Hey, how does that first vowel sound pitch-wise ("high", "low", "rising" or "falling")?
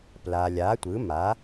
low